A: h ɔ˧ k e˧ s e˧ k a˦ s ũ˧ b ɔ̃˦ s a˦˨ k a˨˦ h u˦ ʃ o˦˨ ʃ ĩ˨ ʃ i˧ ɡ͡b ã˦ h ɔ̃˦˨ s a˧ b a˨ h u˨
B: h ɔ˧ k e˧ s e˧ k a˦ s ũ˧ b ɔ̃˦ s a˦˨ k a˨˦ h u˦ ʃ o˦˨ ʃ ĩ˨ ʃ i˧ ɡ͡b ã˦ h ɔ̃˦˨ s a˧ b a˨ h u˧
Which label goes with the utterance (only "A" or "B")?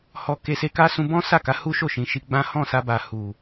A